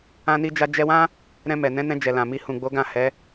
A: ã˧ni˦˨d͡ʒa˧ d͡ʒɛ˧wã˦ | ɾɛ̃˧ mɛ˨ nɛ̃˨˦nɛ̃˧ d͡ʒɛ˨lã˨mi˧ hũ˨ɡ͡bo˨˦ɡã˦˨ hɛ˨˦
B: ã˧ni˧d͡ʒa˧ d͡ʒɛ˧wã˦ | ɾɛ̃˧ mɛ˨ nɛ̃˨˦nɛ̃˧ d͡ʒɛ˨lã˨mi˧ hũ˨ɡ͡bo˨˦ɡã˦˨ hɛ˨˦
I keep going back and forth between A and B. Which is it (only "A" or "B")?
B